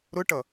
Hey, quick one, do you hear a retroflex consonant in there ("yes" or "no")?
yes